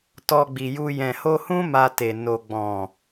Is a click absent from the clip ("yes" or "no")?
yes